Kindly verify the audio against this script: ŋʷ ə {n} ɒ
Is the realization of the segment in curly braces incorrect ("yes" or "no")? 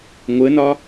no